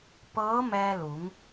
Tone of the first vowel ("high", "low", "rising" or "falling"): rising